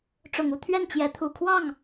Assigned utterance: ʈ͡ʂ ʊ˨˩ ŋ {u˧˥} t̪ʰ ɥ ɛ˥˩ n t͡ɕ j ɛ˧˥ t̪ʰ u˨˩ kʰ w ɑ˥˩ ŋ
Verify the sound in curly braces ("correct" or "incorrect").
incorrect